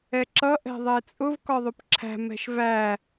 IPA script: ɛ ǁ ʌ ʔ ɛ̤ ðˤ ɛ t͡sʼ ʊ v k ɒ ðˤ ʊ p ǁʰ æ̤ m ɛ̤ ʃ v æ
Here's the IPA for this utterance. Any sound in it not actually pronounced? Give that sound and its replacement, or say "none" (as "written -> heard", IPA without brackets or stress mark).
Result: none